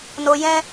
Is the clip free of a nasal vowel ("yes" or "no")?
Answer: no